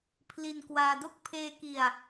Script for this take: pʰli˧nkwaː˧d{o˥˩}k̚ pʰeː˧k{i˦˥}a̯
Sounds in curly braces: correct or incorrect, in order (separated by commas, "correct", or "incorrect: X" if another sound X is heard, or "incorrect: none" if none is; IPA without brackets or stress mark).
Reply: correct, incorrect: i˧